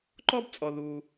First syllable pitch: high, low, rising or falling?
high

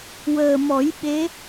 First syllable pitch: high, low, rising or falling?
low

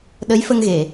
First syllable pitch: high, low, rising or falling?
rising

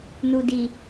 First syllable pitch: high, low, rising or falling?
low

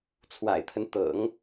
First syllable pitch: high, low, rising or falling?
low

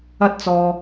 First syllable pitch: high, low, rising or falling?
high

